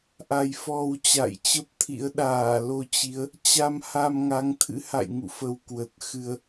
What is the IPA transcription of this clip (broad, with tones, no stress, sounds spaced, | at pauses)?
ʔ a˨˩ j f ɔ˨˩ w t͡ɕ a̰˧˨ j t͡ɕ ə˦˥ p̚ t̪ʰ ḭ˧˥ ə̯ ɗ aː˧˩ l o˧ t͡ɕ i˨˦ ə̯ | t͡ɕ a˧ m h a˧ m ŋ a˨˦ ŋ t̪ʰ ɨ̰˧˥ h a̰˧˨ j ŋ ṵ˧˨ f ə˨˩ w k w ə˨˩ t̚ x ɨ˧ ə̯